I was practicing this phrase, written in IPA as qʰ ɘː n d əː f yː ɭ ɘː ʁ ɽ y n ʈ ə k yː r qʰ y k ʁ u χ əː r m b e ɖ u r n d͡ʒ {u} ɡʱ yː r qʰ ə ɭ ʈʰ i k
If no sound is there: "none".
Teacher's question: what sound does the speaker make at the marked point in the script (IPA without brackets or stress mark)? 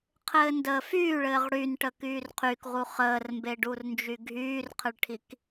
y